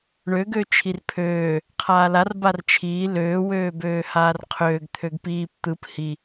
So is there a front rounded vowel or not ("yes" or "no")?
yes